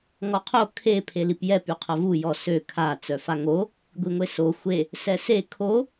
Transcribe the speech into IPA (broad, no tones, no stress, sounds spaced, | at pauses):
ŋ ɔ qʰ o kʰ e pʰ e l i p j ɛ p y qʰ ə v u j ɔ s ø kʰ a t͡s œ f a ŋ o | ɡʷ i ŋʷ e s o xʷ e | s ɛ s e kʰ o